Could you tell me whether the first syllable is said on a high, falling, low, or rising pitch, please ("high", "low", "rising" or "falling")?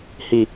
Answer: low